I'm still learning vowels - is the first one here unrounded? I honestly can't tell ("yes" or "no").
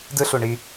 yes